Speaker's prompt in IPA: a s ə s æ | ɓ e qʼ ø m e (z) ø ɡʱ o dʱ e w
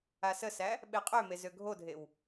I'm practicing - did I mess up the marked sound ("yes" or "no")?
no